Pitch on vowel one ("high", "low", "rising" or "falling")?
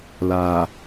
low